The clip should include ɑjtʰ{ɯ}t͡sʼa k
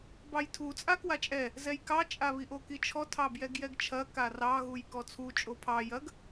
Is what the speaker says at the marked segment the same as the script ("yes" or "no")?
no